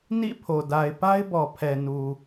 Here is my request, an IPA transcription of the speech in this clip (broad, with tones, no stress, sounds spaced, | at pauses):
n ḭ˦˨ pʰ o˨ d a˨ ɪ̯ p a˦ ɪ̯ b ɔ˨ pʰ ɛ˨ n u˨